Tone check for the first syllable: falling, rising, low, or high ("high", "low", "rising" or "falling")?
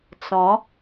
rising